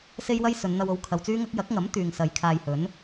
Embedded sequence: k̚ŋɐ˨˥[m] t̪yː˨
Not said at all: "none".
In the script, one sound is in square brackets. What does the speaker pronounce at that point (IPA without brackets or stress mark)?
m